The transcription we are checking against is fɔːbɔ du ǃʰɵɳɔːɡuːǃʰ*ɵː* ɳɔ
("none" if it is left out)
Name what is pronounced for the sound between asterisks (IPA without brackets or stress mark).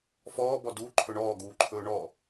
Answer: ɵː